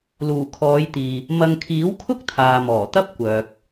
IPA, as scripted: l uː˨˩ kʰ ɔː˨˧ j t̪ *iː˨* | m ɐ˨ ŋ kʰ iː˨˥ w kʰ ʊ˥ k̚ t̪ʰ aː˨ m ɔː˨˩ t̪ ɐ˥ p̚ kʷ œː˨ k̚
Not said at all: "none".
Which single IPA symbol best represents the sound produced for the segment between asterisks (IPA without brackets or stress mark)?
iː˨